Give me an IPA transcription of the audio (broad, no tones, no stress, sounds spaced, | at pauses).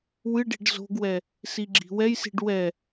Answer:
w ɨ ɖ i̤ ɖ z o̤ ɡ w ɛ | s i ɡ͡ǁ i̤ w ɛ j s i̤ ɖ w ɛ